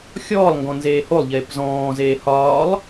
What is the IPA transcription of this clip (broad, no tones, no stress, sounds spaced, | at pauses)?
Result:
xʲ ɔː lˠ ŋ ɡ ɔ̃ n z eː h o lˠ ʎ eː p z ɔ̃ː z eː h ɒː lˠ